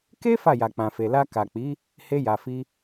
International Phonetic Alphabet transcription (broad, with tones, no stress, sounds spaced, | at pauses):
k e˦ f a˦˨ j a˨ k͡p ã˨ f e˨ l a˧ k a˨ k͡p i˨˦ | h e˧ j a˨ f i˧